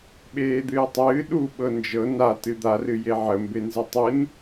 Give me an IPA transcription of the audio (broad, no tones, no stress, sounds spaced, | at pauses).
ɓ eː d̪ ɨː tˤ ɨː ɗ u ɓ ɤ n d͡ʒ ɤ n a t ɨ d̪ a r ɨ j e ʕ ə m b e n z ɨ tˤ ɨ n